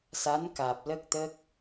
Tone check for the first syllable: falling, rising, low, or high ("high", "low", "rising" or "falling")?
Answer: rising